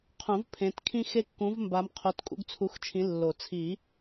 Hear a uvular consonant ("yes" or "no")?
yes